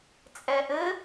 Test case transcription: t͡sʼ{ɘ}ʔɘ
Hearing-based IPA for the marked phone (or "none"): ɛ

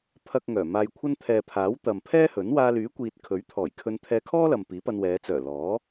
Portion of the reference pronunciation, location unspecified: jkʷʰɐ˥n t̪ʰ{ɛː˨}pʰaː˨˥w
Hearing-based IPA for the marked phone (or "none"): ɛː˨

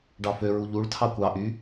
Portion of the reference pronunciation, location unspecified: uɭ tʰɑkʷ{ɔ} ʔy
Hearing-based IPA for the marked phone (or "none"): ɑ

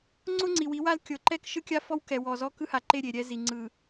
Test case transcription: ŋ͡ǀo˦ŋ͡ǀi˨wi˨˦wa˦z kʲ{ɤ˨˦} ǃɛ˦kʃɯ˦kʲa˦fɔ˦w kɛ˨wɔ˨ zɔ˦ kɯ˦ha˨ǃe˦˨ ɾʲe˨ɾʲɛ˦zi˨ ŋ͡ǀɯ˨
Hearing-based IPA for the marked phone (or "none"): ɤ˨˦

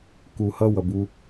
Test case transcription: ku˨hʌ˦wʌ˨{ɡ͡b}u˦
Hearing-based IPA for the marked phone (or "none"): b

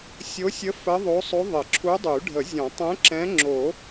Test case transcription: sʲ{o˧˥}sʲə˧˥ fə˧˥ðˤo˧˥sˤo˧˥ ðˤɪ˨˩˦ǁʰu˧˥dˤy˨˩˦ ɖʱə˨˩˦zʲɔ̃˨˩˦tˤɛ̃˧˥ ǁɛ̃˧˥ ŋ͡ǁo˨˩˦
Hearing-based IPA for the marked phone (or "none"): o˧˥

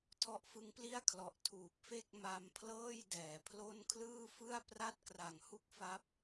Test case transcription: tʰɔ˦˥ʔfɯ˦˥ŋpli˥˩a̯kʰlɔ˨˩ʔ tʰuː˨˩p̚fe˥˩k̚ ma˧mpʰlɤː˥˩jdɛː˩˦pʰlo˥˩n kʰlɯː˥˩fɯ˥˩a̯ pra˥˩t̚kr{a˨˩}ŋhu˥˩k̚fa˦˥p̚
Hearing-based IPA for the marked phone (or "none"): a˨˩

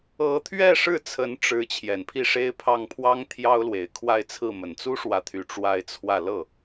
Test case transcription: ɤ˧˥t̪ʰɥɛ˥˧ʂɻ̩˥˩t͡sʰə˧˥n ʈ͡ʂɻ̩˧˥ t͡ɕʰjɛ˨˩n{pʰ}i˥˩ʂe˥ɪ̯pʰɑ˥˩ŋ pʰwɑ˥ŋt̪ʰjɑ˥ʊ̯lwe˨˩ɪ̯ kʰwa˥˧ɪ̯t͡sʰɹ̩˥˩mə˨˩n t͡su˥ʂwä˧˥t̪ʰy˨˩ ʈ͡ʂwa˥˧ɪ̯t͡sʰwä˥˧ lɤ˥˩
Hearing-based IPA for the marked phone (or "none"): pʰ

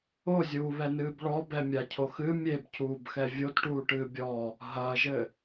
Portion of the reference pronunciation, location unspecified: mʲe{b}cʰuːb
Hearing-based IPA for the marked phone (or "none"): b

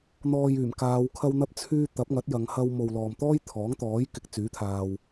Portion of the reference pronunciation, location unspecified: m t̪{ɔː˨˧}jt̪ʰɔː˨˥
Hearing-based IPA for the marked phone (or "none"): ɔː˥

